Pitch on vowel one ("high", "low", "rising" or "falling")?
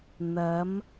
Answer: rising